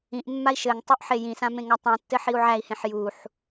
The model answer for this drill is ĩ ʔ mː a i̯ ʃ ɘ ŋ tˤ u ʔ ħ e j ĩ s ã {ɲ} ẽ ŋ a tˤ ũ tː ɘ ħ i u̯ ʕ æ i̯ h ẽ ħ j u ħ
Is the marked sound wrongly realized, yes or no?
yes